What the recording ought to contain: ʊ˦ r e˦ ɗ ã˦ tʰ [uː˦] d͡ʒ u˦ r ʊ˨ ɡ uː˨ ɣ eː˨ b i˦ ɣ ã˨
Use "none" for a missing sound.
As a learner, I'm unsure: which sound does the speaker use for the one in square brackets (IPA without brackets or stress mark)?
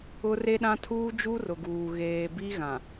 uː˦